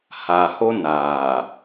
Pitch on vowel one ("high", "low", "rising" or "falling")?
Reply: low